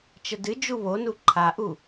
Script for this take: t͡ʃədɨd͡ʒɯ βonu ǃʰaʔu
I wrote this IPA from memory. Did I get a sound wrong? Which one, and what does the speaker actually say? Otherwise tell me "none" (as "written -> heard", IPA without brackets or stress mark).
ɯ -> u